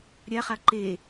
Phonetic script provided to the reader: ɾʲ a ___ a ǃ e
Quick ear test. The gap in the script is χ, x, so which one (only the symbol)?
χ